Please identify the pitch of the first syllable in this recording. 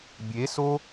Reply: rising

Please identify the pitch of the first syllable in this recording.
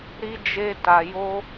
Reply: high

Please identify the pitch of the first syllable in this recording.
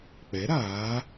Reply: rising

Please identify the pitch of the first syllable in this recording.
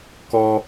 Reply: high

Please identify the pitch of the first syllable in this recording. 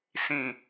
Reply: low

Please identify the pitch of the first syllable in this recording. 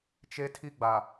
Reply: high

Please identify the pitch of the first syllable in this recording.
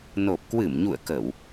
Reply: low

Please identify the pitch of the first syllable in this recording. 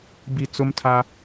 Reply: low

